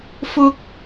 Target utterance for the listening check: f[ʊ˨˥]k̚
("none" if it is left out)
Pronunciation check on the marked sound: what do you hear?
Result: ʊ˥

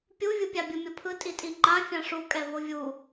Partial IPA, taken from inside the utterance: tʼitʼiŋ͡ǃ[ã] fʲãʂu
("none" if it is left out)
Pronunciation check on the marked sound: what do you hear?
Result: ã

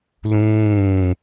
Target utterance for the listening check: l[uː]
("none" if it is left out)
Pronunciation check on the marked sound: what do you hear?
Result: ũː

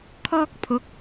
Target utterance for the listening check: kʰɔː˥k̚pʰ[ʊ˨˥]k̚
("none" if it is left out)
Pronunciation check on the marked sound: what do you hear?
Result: ʊ˨˥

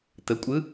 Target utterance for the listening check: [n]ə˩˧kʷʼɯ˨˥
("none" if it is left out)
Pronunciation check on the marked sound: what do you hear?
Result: t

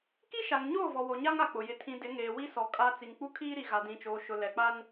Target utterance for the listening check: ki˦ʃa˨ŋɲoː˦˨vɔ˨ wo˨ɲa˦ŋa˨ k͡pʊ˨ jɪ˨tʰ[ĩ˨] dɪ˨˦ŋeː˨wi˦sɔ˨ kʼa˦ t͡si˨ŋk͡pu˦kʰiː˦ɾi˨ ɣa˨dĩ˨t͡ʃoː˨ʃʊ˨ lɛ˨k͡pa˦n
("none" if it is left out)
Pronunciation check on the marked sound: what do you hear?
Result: ĩ˨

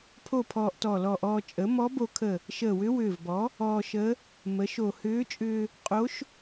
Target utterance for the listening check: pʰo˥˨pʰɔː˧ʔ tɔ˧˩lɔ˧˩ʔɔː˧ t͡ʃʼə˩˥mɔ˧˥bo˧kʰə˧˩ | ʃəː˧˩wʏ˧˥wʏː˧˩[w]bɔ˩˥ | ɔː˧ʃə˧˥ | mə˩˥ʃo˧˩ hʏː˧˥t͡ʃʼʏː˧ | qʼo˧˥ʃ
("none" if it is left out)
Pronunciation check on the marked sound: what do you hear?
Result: v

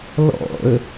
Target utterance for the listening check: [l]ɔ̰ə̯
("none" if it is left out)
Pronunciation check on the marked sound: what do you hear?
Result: l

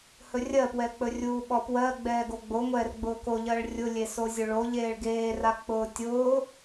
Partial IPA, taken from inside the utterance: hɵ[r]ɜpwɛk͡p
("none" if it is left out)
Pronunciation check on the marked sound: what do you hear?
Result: rʲ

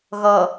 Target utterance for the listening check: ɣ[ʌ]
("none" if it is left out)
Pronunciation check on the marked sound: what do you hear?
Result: ʌ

